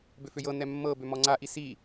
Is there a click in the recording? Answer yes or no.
yes